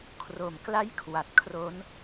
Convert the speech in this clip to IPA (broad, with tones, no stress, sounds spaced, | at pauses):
kʰ r o˨˩ m k l a˥˩ j kʰ w a˨˩ t̚ kʰ r o˦˥ n